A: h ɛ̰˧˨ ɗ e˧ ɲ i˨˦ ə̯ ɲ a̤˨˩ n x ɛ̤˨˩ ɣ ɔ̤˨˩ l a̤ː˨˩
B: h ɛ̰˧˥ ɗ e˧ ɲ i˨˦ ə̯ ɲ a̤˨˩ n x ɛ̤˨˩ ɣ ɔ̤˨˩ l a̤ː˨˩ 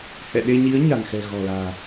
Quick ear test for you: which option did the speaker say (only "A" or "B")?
A